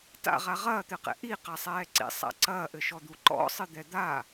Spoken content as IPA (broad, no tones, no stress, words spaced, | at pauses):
ta̰ʁa ʁɐːt̪ɘqɛ̰ ʔiqasˤɛː ǀḭsˤa̰ ǀɐːʔɘʃɔd̪u ǃɔ̰sˤɨd̪ɛ d̪a